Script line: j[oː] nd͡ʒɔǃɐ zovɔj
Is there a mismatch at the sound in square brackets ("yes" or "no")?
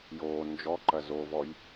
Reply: no